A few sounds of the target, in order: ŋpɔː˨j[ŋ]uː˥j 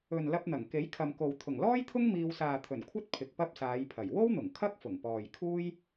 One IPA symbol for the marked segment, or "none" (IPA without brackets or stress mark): kʰ